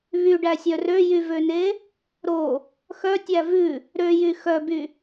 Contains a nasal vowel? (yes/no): no